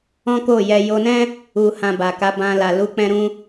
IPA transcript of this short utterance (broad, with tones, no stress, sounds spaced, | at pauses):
ɔ̃˦ k o˦˨ j ɛ˧ j o˧ n ɛ̃˦ | u˨ h ã˨ b a˨ k a˨˦ b ã˧ l a˨ l u˨˦ k͡p ɛ̃˧ ɾ ũ˧